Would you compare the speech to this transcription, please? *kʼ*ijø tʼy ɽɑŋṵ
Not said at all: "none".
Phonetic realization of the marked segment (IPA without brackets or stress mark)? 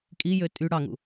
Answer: kʼ